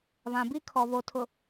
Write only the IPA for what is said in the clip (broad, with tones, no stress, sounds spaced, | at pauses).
β ã˨ b i˦ kʰ ɔ˨ β o˨ tʰ ʊ˨